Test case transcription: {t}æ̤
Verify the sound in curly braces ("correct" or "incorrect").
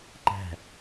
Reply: incorrect